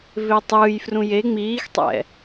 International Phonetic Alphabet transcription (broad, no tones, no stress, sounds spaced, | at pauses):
v e tˤ ɯː j f r ũ j e ŋ͡m iː x tˤ ɛ̰